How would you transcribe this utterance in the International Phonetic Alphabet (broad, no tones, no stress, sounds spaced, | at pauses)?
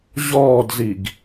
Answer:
ʑ ɔː d z i ɡ